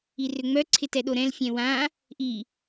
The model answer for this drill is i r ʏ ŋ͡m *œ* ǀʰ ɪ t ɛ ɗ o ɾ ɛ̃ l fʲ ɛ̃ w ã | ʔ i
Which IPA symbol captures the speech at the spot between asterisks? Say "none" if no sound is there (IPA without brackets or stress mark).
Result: œ